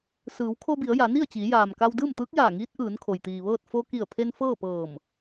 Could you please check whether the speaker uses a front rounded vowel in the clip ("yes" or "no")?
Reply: no